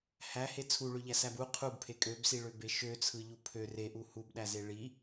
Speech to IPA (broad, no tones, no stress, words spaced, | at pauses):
hæhe t͡sʰuɭøʎæsæb u qʰubpʰe kʼøbsiɭøbe ʃøt͡sʰɯʎu pʰø reʔu hubɗæze ɭi